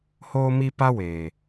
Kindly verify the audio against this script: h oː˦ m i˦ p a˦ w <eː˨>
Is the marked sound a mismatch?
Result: no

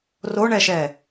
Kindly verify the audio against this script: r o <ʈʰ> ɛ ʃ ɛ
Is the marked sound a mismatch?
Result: yes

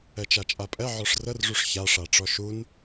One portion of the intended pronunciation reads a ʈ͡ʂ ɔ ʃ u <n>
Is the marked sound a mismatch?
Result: no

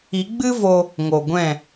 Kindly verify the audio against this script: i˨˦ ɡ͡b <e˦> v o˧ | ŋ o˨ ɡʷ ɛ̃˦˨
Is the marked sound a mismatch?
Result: yes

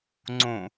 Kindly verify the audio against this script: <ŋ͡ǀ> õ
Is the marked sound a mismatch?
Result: no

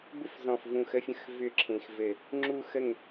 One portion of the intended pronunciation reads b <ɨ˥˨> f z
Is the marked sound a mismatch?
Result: yes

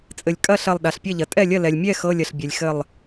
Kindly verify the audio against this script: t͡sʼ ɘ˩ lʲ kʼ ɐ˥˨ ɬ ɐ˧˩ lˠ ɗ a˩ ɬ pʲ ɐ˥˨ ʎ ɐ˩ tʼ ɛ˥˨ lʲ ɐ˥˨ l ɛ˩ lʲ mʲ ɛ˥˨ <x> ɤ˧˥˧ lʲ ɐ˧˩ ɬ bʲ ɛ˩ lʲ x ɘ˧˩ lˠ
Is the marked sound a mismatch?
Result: no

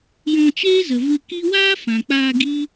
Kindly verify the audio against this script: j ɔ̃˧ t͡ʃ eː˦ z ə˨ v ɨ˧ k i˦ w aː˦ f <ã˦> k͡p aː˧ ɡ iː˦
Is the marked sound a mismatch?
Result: yes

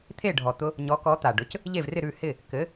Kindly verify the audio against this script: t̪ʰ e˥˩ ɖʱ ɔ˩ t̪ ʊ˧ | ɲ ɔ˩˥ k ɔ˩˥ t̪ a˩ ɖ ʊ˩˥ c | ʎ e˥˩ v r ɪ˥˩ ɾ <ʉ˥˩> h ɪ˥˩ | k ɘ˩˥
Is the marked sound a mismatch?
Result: no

